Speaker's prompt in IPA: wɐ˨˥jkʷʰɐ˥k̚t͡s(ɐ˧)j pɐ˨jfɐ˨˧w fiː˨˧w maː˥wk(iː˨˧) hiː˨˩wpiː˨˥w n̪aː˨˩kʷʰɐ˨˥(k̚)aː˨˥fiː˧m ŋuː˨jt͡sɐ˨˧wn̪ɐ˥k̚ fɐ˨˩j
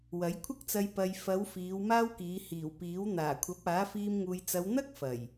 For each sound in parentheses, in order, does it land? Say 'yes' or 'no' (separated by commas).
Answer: yes, yes, no